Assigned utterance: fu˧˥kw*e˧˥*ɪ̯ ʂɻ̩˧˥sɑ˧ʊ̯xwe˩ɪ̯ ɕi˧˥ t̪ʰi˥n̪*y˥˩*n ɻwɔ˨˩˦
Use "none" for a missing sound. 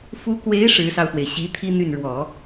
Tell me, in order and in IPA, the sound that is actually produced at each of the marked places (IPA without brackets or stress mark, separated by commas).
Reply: e˧˥, y˥˩